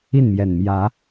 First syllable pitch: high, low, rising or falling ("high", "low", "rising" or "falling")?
falling